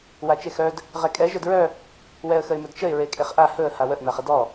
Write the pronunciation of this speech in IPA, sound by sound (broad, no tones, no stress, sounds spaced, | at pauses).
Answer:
w a t͡ʃ e x œ d | ʁ ɛ kʼ ɛ ʒ œ d ɹ œ | w ɛ ə̯ x ə ɪ̯ m ɵ d t͡ʃ ə ɪ̯ ɹ e kʼ e χ ʔ a h ɵ ə̯ h a w ə ʔ n a χ ə d ɔ